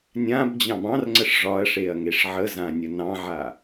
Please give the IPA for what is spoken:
nʲ ã b d͡ʑ ɑ̃ b ɑ̃ r ŋ͡ǀ ə ʂ ʐ ɒ ɐ̯ ʂ e ɐ̯ ŋ e ʂ ʕ ə z ã nʲ ə n ɑ̃ ʕ a

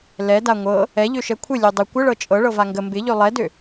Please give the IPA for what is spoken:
l ɛ d a ŋʷ ɤ | ɛ ʎ ø ʃ ɛ kʷʰ ɪ lʲ ø dˤ ɪ kʷ ə ɭ ɤ t͡ʃʼ ɤ ɭ ɤ v a ŋ ɡ ə m b ɪ ʎ ø lˠ ɛ d ø

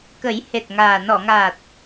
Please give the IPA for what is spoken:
k ə˨˩˦ j h e˨˩ t̚ ŋ aː˨˩ n ɔ˨˩˨ ŋ aː˨˩ t̚

